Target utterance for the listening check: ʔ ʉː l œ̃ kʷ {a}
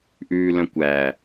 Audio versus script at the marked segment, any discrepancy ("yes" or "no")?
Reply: yes